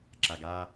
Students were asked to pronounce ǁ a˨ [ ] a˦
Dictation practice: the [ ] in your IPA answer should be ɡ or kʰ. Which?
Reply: ɡ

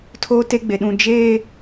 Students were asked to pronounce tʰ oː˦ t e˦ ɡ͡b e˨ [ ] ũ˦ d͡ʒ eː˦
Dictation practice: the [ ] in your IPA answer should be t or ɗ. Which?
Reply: ɗ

